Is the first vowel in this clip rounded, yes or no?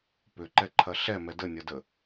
yes